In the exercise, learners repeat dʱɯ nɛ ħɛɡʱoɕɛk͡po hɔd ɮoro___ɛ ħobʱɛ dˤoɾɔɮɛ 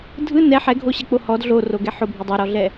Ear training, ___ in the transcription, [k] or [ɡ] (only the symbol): ɡ